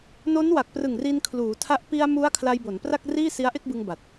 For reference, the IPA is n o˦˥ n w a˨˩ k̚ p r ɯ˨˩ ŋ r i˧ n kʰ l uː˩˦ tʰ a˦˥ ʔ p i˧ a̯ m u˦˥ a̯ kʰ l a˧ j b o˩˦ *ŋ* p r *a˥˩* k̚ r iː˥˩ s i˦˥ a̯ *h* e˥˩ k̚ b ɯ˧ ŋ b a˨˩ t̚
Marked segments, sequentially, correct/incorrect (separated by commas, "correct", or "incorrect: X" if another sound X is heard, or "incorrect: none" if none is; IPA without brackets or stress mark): incorrect: n, correct, incorrect: ʔ